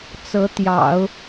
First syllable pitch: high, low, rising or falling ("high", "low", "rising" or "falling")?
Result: rising